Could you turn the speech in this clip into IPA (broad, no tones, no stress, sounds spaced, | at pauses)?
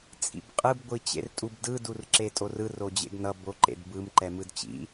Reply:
t͡sʼ ḭ b qʼ ɯ b ɡʷ i t͡ɕ ḛ r tʼ u b d ɯ d u r ǁ e tʼ o r ɯ r o d͡ʑ ḛ ɡ n ʌ b o ǃ ḛ d b ɯ m ǃ ɛ m ɯ d t͡ɕ ḭ